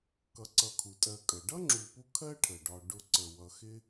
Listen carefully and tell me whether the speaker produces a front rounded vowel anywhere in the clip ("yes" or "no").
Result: no